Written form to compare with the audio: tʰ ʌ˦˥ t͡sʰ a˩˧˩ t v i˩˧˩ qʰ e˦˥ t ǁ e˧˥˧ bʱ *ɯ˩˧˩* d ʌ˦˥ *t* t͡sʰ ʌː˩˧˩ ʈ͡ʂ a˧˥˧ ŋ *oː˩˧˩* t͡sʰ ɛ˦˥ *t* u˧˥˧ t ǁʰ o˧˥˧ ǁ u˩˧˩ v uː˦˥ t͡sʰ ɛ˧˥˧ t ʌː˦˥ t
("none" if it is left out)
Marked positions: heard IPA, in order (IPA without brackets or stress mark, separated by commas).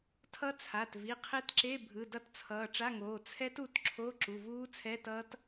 ɯ˩˧˩, t, oː˩˧˩, t